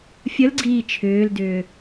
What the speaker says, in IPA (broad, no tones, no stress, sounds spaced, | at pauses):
fʲ ə l ɡ͡ǀ iː t͡ʃʰ ʏː l d ʏː